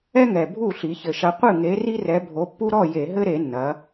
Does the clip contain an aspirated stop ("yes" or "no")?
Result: no